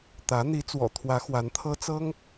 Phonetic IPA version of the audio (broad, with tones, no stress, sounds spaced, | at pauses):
t̪ ä˧˥ n̪ i˧˥ t͡s w ɔ̰˨˩ t̪ʰ w ä˧˥ x w a˧˥ n t̪ʰ ɤ˥ t͡s ɤ˥ ŋ